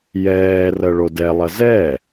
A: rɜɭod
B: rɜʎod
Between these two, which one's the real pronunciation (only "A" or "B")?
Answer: A